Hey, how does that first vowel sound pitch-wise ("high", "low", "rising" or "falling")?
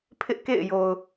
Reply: high